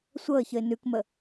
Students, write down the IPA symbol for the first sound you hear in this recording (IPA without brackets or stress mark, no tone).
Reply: sʷ